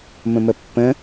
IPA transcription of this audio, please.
m ə̃ m ə pː ə̃

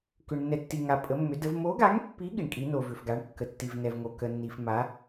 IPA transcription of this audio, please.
k ʏ˧ ɳ nː ɛ˧ tː i˧ ŋ a˧ pʼ ə˧˥ mː ʏ˧˥ d ə˧˥ v m o˧˥ ɡ a˧˥ ŋ pː i˧˥ ɠ i˧ ɳ kʼ i˧˥ n o˧ v ʏ˧ f ɡ a˧˥ ɳ kː ə˧ tː i˧ v n ɛ˧ v ŋ o˧ k ə˧ nː i˧ f m a˧˥

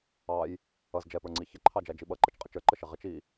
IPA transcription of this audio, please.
ɑ j | ʌ z d͡ʒ ɛ p ə˞ ŋ͡ǀ i ç ɪ ǃʰ ɑ d͡ʒ æ d͡ʒ i ɓ ʌ ǃ ə t͡ʃ qʼ ɪ t͡ʃ ə˞ ǃ ə ʃ ɪ ʁ ɪ t͡ʃ i

